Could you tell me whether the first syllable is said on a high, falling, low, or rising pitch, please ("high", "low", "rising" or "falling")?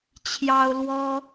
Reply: high